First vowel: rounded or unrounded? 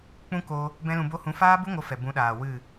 rounded